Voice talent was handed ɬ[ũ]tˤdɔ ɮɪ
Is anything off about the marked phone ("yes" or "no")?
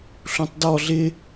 no